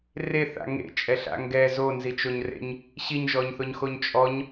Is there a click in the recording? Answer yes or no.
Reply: no